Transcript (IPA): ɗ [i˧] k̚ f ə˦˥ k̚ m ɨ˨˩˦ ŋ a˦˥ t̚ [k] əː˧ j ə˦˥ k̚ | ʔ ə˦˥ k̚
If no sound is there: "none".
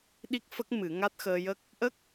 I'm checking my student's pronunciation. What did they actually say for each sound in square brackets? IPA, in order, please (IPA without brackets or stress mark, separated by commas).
i˦˥, x